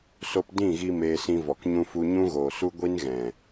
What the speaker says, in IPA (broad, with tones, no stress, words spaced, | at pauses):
so˦p dĩ˦˨ɣi˧ meː˧sĩ˧vɔ˨k ɲũ˧fu˧ ɲũ˦ɣoː˨su˦ɡʷi˦n ɣɛ̃˨